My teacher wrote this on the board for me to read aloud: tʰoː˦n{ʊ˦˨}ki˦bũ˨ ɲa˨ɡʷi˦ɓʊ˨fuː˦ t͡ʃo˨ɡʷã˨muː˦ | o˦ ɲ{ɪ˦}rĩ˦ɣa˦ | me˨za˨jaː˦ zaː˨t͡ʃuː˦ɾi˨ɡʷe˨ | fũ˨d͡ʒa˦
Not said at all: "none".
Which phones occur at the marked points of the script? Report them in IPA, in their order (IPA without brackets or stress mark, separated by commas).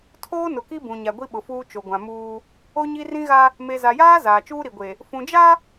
ʊ˨, i˦